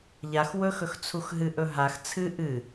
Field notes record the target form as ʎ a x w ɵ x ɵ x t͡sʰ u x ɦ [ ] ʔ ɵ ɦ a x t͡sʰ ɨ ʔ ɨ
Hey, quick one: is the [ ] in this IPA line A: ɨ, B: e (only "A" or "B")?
A